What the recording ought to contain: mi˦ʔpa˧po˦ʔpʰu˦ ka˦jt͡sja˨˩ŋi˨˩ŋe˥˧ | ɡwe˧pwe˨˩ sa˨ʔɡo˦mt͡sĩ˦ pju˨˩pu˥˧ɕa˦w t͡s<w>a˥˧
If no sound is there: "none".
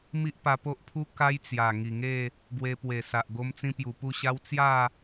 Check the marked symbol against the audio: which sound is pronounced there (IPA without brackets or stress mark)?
j